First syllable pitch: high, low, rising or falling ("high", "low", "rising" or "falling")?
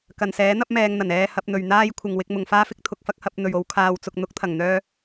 low